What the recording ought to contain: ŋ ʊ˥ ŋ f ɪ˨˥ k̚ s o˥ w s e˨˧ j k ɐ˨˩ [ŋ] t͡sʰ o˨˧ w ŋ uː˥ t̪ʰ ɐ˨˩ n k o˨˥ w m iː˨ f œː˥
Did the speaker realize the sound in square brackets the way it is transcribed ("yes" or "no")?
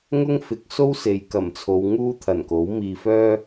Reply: no